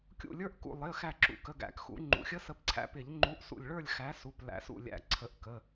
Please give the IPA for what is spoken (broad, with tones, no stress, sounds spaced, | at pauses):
kʲ ṵ˧˩ lʲ ə˞˦˥ ʔ k ṵ˧˩ lˠ ɪ˩˧˩ ə̯ x æ˧˩ ǁ ṵ˩˧˩ k ə˩˧˩ ɡ æ̰˨˩˦ k x ṵ˨˩˦ ŋ͡ǃ ṵ˩˧˩ xʲ ə˦˥ s ə˨˥ p ǀʰ æ̰˨˥ p ɪ˨˩˦ ʎ ŋ͡ǃ u˨˥ ʔ s ṵ˧˩ lʲ ɭ ə˞˥˨ lʲ x æ˨˥ s u˩˧˩ p l æ̰˨˩˦ s ṵ˥˨ lʲ æ̰˧˩ ǀʰ ə˨˩˦ ʔ k ə˩˧˩